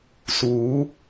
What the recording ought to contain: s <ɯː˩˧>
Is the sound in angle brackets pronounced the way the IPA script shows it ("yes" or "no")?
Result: no